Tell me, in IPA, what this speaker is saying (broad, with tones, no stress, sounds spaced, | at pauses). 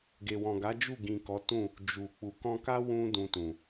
ɡ e˨ w ɔ̃˨ ɡ a˨˦ d͡ʒ u˦˨ ɡ ĩ˨ k ɔ˨˦ t ũ˦˨ | d͡ʒ u˨ k͡p u˨ k ɔ̃˧ k a˦ w ũ˧ d ũ˧ t ũ˨